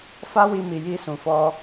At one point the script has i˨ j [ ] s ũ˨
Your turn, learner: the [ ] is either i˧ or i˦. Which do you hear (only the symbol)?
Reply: i˧